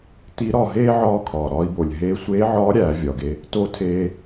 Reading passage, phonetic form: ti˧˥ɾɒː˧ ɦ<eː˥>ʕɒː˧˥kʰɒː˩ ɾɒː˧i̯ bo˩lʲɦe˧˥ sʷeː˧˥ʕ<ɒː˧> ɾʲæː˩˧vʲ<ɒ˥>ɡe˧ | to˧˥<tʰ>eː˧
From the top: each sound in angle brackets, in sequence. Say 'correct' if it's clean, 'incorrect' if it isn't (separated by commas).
correct, incorrect, incorrect, correct